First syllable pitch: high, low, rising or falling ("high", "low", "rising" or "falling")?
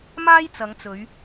high